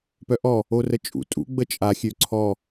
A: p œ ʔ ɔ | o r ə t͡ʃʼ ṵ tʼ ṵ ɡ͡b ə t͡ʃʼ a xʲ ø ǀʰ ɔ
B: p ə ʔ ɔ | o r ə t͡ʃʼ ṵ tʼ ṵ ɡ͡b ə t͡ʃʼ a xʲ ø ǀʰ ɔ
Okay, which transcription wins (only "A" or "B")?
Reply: A